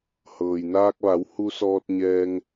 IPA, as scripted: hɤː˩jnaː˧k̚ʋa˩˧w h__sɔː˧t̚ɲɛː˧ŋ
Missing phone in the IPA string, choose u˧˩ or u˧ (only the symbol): u˧